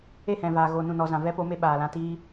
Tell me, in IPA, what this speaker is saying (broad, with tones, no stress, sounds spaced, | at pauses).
e˦˨ h ɛ̃˨ v aː˨ ɣ oː˧ n ũ˦˨ n ɔ˧ z ã˨ v ɛ˦ p o˨˦ m e˧ ɓ aː˨ l ã˧ t iː˦